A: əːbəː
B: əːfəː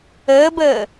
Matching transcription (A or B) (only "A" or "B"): A